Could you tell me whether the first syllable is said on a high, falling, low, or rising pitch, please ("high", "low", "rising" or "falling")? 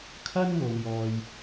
high